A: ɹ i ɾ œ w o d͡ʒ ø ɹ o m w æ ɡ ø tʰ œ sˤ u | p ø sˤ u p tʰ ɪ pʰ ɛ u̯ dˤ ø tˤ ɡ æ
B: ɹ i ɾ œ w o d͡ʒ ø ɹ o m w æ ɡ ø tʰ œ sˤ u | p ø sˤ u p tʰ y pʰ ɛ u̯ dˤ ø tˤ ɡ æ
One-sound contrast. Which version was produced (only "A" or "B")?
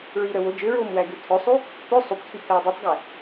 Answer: B